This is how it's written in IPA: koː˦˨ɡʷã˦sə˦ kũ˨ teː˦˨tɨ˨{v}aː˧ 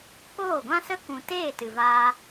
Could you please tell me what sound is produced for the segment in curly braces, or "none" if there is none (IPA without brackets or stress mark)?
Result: v